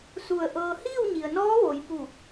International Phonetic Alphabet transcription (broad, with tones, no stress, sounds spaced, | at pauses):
s u˧˩ ə̯ ʔ ɤː˧ h iː˥˨ w ɲ i˩ ə̯ n ɔː˧˥ ʋ o˩˧ j p u˧˩